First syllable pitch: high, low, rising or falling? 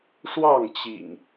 falling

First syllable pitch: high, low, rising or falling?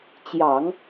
low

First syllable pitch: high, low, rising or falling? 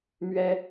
high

